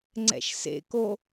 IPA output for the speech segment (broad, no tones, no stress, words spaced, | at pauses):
ŋ͡ǀɛ̰ʃsḛko